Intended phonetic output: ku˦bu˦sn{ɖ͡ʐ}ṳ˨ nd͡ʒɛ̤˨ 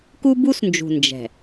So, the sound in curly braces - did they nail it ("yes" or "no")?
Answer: no